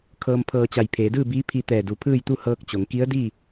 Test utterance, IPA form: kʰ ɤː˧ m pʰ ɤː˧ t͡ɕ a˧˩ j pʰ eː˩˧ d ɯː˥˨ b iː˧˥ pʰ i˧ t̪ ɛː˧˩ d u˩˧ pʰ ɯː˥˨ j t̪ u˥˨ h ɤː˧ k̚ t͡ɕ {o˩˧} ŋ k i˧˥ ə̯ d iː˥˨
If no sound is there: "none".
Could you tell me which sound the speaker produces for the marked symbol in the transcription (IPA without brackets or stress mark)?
o˩˧